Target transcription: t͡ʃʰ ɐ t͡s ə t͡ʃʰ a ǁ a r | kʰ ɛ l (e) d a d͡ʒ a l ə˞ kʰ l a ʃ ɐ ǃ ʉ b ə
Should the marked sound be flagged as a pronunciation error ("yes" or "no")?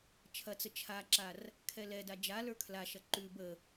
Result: yes